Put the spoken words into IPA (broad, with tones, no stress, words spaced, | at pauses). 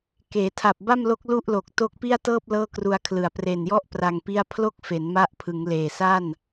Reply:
keː˩˦tʰa˨˩p̚ba˥˩mlo˦˥k̚ lu˥˩ʔlo˨˩k̚ to˦˥k̚pi˥˩a̯tɤː˥˩p̚ lɤː˥˩kru˧a̯kʰlɯ˨˩a̯ pre˨˩njɔ˥˩ʔ pra˧ŋpi˥˩a̯ pʰlo˥˩k̚fe˩˦n ma˦˥ʔpʰɯ˩˦ŋ leː˨˩ sa˥˩n